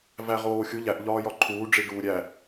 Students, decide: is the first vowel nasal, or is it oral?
oral